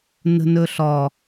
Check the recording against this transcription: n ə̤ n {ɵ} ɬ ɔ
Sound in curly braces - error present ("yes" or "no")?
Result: no